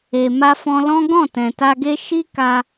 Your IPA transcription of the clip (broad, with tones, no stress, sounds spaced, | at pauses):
e˨ m a˧ f ɔ̃˧ l ɔ̃˦ ɡ ɔ̃˦˨ t ɛ̃˨ t a˧ ɡ e˦ ʃ i˦ k a˧